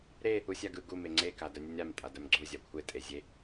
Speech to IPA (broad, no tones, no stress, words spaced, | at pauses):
ɾe | usʲaɡɯ ɡu meŋ͡ǀeka dœnʲunʲɾam tʼadœmɡ͡ǀu zʲakʷʰe tʼezʲe